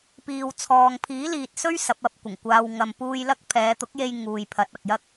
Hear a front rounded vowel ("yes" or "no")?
no